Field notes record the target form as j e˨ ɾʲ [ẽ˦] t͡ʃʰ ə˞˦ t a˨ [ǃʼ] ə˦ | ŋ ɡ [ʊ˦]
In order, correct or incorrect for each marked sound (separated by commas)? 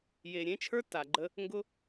correct, incorrect, correct